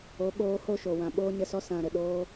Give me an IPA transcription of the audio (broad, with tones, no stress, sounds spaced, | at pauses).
o˨˦ ɓ oː˧ h o˦˨ ʃ o˨ w ã˨ ɓ oː˧ ɲ ə˧ s ɔ˦ s ã˨ ɾ ə˨ ɗ oː˧